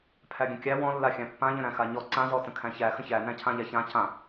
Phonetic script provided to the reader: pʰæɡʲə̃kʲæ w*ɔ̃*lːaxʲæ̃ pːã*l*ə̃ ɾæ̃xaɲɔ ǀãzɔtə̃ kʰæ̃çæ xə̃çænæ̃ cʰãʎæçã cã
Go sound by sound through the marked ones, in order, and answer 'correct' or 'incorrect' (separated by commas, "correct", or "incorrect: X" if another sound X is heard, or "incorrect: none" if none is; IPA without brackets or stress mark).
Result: correct, incorrect: ʎ